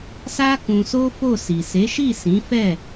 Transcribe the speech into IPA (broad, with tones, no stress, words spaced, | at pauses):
sa˦ kũ˧so˦fo˦˨si˨ se˨˦ʃi˦˨sĩ˨˦fɛ˦˨